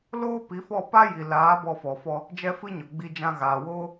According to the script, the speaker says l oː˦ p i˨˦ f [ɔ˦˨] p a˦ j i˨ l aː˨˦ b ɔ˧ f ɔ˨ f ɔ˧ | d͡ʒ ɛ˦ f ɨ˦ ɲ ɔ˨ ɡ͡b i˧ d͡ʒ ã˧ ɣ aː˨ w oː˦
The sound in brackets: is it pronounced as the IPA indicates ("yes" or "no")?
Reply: yes